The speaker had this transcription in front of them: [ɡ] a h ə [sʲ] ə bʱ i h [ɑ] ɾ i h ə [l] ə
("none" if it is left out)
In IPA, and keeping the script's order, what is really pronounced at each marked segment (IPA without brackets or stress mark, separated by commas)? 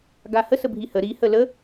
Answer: ɡ, s, ə, l